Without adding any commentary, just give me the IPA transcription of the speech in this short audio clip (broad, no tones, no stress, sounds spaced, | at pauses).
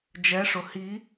d͡ʒ ɛ ʂ ʊ h i